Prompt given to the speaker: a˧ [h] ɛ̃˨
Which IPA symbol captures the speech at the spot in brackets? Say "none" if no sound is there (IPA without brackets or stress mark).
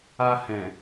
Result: h